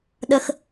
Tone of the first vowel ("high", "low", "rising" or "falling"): low